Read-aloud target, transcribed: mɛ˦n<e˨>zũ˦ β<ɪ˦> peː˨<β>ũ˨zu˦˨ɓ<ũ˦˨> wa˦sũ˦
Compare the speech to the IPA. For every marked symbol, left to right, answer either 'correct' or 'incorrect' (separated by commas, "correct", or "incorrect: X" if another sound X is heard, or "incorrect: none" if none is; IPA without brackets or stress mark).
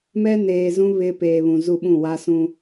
incorrect: eː˨, correct, correct, correct